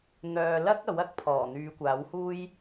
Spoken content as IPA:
n̪œː˨lɐ˥k̚ ɐ˨˥wɐ˨˥k̚pʰɔː˨˩ n̪yː˨˧kʷaː˨˥whuː˥j

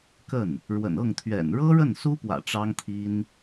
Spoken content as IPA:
kə˥˩n | ɻwə̰˨˩nɤ˥˩ŋt̪ʰɥɛ̰˨˩n ɻɤ˥ɻə˥˩nsu˥pwä̰˨˩ ʈ͡ʂɑ˥ŋt̪ʰi˥n

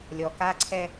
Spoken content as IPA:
lʲɔ˨ka˦ǀʰɛ˦

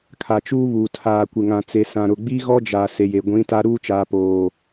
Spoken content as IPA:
kʰa˨t͡ʃuː˦βuː˨ tʰaː˨kʷɪ˨ ŋã˨t͡se˨sã˨ ɾʊ˨ɡ͡bi˦ɣɔ˦ d͡ʒa˨ se˨je˨ ɡʷĩ˨˦ta˦ ɾuː˦t͡ʃaː˨poː˨

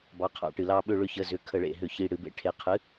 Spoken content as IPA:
bɑ˩˧˩qʰɑ̰˧˩˧ ʈɨ˩lɑ˦˨ɓʏ˦˨ ɭʏ˦˨çə˩˧˩ zʏ˩˧˩ kʰə˧˩˧ɭḛ˩ɦʏ˧˩˧ çi˩˧˩ ɽɨ˧˩˧bḛ˩˧˩ʈʰe˩˧˩ qʰɨ˩˥

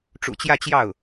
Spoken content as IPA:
ʈ͡ʂṵ˨˩t͡ɕjä˥˧t͡ɕjɑ˥˩ʊ̯

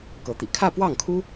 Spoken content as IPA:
kɤ˧˥t̪ḭ˨˩ kʰä˥˧pwɑ˥˩ŋkʰu˥

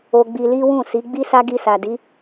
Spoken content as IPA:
o˧ɡ͡bi˧li˦wũ˦˨ si˨˦ɡ͡bi˦sa˦ ɡi˧sa˨di˨˦

